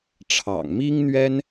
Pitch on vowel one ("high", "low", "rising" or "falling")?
low